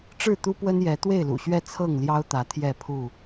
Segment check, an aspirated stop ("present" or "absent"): present